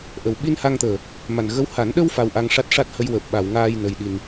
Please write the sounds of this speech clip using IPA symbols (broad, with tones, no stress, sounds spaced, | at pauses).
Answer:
ʔ ə˨˩ w ɓ i˧ n h a˧ ŋ t̪ əː˨˩ | m a˨˩ n ɣ ə˧ w h a˨˩˦ n ɗ ə˧ w f a˧ w ʔ a˧ ŋ ʂ a˦˥ t̚ ʂ a˦˥ t̚ h ə˧ j w əː˨˩ p̚ ɓ a˨˩˨ w ŋ aː˧ j n ə˨˩ j ɗ i˨˩ n